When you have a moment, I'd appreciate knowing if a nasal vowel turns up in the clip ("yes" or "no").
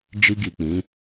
yes